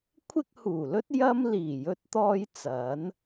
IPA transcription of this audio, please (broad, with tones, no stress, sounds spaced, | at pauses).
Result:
kʷʰ ɪ˥ k̚ h uː˨˩ l ɵ˥ t̚ j ɐ˥ m l iː˨˩ j ɵ˧ t̚ t̪ ɔː˧ j t͡s ɐ˨˥ n